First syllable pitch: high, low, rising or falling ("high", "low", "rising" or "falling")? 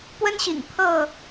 high